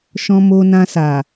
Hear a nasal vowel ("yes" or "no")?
yes